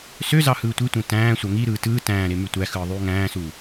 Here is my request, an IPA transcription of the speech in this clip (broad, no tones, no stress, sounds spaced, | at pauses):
s ø z ɑ h ɯː tʷ i tʷ ẽ t æ̃ː sʷ æ ŋ i ɾ ɯː t ɯː t æ̃ː ɾ e m y tʷ æ x ɯː ðˤ yː ŋ æ̃ː s u